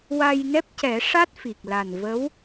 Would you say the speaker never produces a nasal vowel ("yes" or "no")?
yes